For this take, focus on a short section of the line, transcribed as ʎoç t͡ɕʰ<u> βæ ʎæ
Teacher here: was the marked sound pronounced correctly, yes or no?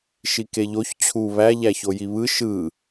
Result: yes